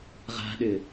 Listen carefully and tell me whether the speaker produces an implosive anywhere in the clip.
yes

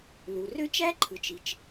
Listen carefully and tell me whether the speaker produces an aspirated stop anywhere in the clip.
yes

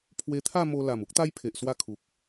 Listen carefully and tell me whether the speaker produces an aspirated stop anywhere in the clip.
yes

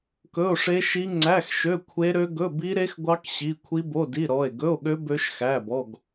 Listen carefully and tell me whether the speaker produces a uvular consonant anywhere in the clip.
no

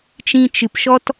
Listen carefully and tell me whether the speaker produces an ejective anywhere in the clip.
no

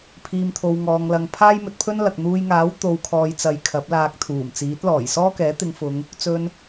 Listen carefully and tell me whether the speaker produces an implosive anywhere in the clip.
no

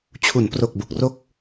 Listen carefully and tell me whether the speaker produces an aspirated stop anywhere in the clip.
yes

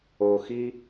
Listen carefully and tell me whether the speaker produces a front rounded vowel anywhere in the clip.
no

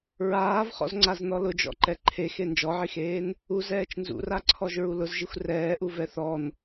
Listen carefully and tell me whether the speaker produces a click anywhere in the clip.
yes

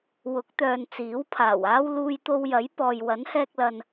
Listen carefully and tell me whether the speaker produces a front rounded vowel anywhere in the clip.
yes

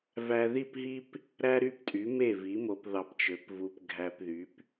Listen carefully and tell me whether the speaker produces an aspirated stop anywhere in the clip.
no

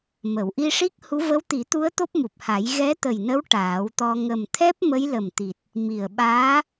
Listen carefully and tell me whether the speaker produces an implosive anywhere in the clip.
yes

